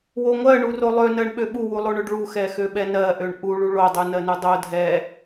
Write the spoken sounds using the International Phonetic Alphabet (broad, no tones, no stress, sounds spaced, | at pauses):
w o ŋʷ ɜ ɳ u r o lˠ ø n ɜ ɳ ɓ ø ɓ u w u lˠ o ɳ ø ɖ ɭ u x ɛ x ø ɓ ɛ n ɜ ʔ ø ɳ ʔ u ɭ u ɭ o dˤ u n ɜ n u dˤ o dʱ ɛ